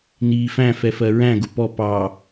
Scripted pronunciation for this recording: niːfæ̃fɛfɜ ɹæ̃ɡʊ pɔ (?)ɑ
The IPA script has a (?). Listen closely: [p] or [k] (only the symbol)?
p